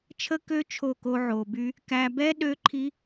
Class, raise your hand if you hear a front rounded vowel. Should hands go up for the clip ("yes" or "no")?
yes